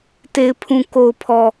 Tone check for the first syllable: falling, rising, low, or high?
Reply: low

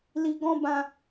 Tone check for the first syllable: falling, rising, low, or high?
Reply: low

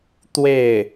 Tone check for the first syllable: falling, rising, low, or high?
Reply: falling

